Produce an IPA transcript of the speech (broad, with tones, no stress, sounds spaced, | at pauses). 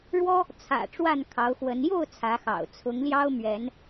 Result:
ɻ w ɔ˦ | t͡sʰ ä̰˨˩ ʈ͡ʂ w a˥˨ n kʰ ɑ˨˦ ʊ̯ x w ə˨˦ n j o˥˨ ʊ̯ t͡sʰ ä˨˦ x ɑ̰˨˩ ʊ̯ t͡sʰ ʊ˨˦ ŋ l j ɑ˦ ʊ̯ m ɥ ɛ˨˦ n